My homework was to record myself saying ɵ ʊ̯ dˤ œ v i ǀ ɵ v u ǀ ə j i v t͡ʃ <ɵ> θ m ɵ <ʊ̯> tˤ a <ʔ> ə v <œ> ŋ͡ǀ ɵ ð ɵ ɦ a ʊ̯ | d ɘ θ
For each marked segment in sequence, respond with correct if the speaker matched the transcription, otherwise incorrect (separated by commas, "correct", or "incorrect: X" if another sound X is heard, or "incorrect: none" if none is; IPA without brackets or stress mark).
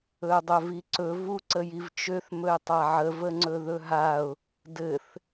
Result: incorrect: ø, incorrect: ɪ̯, incorrect: ʕ, incorrect: ə